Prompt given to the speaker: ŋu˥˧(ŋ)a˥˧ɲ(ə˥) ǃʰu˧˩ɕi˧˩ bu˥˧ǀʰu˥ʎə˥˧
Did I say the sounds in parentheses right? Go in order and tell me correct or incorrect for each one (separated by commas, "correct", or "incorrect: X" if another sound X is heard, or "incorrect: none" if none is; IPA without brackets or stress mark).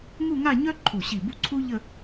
correct, incorrect: œ˥